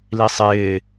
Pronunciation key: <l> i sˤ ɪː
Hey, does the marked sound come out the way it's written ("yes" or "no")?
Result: yes